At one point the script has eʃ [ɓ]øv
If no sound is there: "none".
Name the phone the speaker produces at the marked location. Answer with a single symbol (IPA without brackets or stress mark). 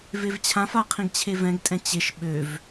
ɓ